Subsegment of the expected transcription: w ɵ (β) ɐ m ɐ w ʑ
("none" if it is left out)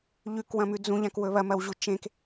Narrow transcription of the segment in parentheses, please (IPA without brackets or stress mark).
β